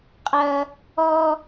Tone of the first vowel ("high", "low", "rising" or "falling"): high